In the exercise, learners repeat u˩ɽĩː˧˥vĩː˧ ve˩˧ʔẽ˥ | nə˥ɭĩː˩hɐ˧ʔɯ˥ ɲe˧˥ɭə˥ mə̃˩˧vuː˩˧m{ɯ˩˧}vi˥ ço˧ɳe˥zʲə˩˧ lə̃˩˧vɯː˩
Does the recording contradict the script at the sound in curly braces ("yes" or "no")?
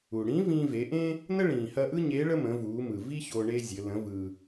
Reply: yes